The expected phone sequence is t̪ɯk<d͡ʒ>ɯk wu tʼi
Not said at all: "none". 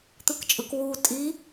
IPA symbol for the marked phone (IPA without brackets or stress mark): t͡ʃʼ